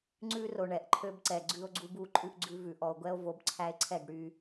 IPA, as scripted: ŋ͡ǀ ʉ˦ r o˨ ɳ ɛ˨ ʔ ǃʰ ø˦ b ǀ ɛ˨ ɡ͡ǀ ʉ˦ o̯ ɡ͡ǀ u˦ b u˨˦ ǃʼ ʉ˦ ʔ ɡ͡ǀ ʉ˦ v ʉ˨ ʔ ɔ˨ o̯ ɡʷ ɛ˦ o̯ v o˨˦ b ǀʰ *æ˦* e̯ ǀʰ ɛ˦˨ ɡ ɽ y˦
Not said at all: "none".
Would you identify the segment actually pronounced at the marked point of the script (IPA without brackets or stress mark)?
æ˦